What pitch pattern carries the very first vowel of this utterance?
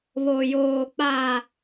low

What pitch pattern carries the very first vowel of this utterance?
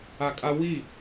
high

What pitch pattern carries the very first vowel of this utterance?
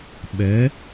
rising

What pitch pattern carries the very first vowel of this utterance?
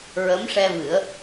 rising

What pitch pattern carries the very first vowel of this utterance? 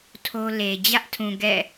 high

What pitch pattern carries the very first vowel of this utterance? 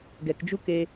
low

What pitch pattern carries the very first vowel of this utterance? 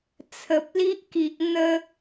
low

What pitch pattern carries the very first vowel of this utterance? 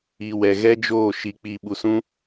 low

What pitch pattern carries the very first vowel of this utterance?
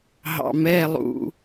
low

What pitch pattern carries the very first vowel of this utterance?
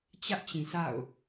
high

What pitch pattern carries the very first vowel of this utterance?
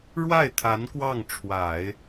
falling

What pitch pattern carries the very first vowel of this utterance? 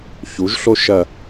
rising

